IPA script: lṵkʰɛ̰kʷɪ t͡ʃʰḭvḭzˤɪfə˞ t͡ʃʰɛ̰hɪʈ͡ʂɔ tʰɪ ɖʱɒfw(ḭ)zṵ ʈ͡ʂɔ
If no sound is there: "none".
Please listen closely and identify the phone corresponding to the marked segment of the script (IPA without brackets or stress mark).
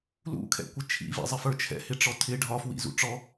ḭ